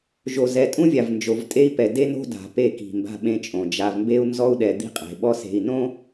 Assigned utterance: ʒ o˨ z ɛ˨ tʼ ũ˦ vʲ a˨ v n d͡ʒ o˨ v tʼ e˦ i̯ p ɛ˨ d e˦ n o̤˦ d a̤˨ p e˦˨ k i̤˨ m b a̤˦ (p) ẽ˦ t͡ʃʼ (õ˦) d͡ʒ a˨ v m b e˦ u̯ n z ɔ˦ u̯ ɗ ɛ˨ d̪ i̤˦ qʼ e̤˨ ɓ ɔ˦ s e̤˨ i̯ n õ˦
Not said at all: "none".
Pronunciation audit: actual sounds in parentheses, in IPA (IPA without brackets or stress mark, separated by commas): ɓ, õ˨